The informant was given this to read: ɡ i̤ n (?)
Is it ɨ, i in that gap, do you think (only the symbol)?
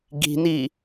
i